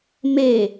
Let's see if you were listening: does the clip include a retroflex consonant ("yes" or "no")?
no